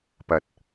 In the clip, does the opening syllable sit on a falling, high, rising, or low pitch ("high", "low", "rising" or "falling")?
rising